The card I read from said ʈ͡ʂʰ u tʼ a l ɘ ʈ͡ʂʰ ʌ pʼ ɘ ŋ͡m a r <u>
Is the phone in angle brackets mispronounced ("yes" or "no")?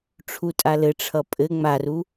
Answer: no